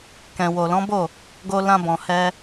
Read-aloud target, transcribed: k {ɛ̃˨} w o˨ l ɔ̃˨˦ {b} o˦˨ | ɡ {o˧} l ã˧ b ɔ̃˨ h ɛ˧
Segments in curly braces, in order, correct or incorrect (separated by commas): correct, correct, correct